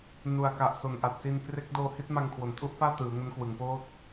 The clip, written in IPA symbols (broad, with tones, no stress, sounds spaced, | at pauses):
n u˨˩ a̯ k a˨˩ ʔ s o˨˩ n ʔ a˨˩ t̚ s i˧ n k r e˦˥ k̚ d oː˧ h i˥˩ t̚ m a˧ ŋ kʰ w o˨˩ n tʰ u˥˩ ʔ p aː˥˩ t ɯː˩˦ ŋ o˦˥ n k w ɯ˩˦ ŋ p oː˥˩ t̚